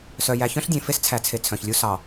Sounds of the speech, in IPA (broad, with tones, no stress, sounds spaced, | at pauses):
s œ˨ j æ˨ ç œ̃˦ ɬ dʲ ẽ˨ f e˦ s t͡sʰ æ˨ t͡sʰ e˨ t͡sʰ œ̃˨ ç lʲ u˦ s ɑ˨